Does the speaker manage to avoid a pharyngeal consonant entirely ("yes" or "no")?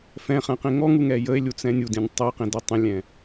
yes